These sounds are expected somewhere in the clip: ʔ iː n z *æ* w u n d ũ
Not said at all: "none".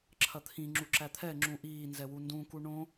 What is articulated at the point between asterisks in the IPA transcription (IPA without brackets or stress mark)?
ɛ